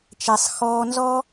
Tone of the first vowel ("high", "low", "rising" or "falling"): low